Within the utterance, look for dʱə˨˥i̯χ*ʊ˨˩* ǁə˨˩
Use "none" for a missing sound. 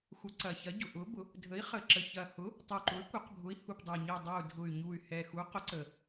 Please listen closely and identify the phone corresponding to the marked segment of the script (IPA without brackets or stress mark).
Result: ə˨˩